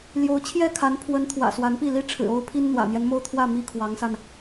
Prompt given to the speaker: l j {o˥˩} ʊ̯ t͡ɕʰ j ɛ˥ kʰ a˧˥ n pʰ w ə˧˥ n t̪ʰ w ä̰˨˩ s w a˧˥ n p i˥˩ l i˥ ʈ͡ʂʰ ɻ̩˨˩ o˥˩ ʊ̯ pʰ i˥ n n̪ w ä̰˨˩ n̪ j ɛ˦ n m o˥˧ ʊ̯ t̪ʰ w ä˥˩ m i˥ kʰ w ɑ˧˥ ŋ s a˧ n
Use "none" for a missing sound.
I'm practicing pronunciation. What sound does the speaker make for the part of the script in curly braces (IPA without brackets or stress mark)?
o˧˥